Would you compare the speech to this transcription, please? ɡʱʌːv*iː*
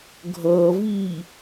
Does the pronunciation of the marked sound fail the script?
no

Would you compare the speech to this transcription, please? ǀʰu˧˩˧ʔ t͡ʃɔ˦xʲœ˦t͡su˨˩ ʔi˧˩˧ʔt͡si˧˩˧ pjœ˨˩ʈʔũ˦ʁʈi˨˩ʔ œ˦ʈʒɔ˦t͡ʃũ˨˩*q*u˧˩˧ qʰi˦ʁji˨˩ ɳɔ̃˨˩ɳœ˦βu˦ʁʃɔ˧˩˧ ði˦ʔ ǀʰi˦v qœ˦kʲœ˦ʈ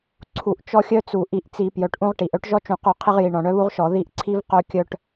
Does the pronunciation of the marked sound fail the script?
no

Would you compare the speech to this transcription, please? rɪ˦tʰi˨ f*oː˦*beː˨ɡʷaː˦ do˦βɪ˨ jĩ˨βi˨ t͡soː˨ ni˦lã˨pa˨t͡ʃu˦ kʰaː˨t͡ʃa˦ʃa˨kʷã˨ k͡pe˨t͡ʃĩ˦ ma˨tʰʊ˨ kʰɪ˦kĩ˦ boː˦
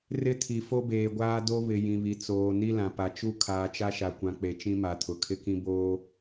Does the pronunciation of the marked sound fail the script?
yes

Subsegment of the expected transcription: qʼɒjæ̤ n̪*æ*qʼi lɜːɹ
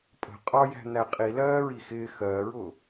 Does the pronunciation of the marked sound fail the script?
no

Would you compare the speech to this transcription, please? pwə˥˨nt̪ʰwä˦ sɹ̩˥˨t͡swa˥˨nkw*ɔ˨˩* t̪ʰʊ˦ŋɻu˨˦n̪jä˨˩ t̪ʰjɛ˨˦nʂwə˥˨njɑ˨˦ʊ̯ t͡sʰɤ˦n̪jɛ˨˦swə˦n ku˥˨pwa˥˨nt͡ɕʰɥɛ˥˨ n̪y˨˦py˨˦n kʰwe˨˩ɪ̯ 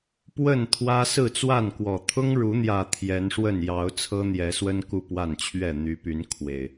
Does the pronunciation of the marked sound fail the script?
no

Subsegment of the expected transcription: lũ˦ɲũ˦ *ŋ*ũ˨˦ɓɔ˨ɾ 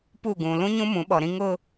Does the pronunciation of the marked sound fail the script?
yes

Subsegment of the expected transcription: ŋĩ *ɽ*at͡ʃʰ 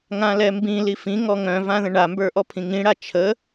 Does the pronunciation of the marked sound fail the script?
no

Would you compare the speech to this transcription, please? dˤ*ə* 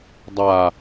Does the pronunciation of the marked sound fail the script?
yes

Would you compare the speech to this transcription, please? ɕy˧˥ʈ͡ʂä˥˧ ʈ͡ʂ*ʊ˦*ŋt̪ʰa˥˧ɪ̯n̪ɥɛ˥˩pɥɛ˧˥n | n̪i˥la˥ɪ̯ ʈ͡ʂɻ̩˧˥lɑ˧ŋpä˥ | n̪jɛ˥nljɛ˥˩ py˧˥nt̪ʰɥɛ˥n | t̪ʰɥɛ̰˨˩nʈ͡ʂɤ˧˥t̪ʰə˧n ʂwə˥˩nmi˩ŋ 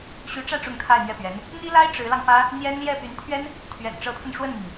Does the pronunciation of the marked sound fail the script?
yes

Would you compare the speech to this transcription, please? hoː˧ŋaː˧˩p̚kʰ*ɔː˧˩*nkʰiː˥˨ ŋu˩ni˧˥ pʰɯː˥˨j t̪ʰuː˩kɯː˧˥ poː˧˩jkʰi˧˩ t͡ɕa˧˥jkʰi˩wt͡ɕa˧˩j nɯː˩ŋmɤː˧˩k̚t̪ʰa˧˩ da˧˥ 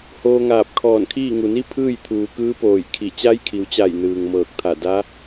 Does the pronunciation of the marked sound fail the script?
no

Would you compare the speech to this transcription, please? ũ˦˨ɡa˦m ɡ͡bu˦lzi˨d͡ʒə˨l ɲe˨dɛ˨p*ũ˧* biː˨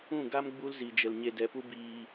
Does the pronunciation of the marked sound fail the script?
yes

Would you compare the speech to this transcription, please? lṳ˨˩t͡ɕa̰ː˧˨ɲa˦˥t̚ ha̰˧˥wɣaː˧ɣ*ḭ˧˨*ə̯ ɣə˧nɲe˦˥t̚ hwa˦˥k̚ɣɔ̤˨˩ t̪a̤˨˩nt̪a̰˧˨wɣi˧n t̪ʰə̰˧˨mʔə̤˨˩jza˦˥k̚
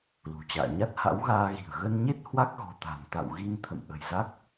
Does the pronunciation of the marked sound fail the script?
yes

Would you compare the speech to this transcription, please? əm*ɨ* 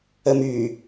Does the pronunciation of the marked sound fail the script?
yes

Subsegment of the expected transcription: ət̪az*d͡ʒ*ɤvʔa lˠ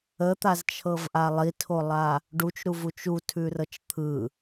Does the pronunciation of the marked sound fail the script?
yes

